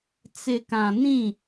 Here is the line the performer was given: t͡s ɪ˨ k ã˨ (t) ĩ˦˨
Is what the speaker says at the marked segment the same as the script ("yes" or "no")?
no